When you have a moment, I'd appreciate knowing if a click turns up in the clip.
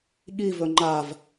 yes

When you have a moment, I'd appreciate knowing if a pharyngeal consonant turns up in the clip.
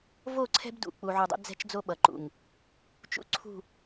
yes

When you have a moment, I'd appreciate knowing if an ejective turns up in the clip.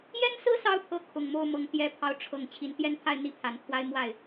no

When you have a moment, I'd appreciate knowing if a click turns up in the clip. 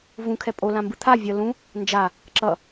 yes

